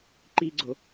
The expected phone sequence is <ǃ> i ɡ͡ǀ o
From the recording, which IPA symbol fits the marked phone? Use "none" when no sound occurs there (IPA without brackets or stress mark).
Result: ǃ